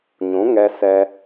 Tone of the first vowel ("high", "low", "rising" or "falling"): rising